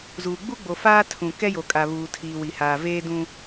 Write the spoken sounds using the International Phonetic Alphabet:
z uː˨ ɡ͡b u˦ ɡ͡b o˨ f aː˦ tʰ ũ˨ k ɛ˦ j o˨ kʼ a˨ β uː˨ tʰ iː˨ w i˨ h aː˨ v eː˦ d ũ˦

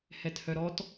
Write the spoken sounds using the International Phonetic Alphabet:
h ɛ t h œ ɾ ɔ t

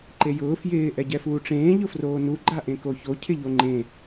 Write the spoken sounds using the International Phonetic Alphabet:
ǃ e j ʊː f j ɪː ʔ ɛ ɟ ɛ f uː ʈ͡ʂ ẽː ʎ ʊ f r oː n u ɡ͡ǃ a ʔ ẽ k o ç o cʰ ɪ ʎ o ŋ͡ǃ ẽ

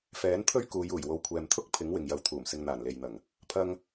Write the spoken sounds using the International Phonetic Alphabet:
f ɛː˨˥ n t̪ʰ ɵ˥ ɥ k uː˨˧ j uː˨˩ j w o˨ w kʷʰ ɛː˨ m t̪ʰ ʊ˥ k̚ pʰ ɪ˨˥ ŋ w ɪ˨ ŋ j ɐ˨ w t̪ʰ uː˨˩ m s ɪ˧ ŋ n̪ aː˨˩ n l e˨ j n̪ ɐ˨˩ ŋ | pʰ ɐ˧ ŋ

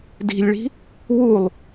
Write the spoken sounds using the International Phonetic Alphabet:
d i̤ lʲ ɭ i̤ | w u lˠ

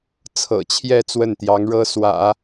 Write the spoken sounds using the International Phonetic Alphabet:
t͡sʰ ɤ̰˨˩ t͡ɕʰ j ɛ˥˧ t͡s w ə˥˩ n t̪ j ɑ˧˥ ŋ ɻ ɤ˥ s w ä̰˨˩˦

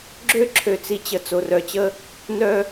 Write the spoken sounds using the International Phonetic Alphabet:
ɡ͡ǁ ø˦ ǁʰ ø˨ t͡s i˨ t͡ɕ ə˨ t͡s o˨ r œ˨ t͡ɕ ə˦ | n œ˦

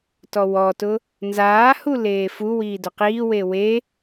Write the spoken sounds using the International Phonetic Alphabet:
t ɔ w ɔ t ʊ | n z aː h u l eː f u w iː d ʊ q iː w e w e

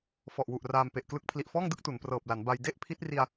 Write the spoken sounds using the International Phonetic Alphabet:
f ɔ˨˩ ʔ w u˨˩ ʔ r aː˧ m p e˨˩ ʔ k l ɯ˦˥ k̚ pʰ l i˨˩ ʔ f ɔː˥˩ ŋ d ɯ˥˩ k̚ t u˩˦ n p r ɤː˨˩ p̚ l a˩˦ n b a˧ j d e˥˩ ʔ pʰ i˦˥ t̚ r i˧ a̯

